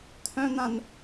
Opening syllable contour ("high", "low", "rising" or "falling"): high